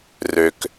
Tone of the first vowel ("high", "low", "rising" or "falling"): low